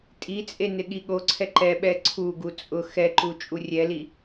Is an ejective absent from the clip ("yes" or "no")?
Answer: no